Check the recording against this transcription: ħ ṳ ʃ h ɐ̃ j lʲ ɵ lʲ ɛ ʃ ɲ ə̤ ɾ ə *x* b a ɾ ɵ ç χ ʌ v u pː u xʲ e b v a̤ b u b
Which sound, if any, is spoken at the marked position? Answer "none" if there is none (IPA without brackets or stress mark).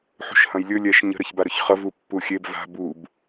ç